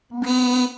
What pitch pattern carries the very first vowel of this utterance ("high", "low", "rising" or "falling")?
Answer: high